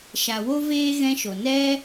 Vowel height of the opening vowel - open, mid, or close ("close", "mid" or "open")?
open